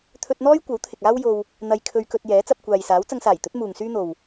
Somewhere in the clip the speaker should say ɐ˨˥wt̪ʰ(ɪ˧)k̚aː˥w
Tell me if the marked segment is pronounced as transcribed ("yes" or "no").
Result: no